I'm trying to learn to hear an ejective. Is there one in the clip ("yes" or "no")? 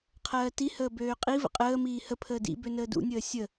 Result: yes